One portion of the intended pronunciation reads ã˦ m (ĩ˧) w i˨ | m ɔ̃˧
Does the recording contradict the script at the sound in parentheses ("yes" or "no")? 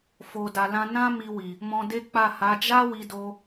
yes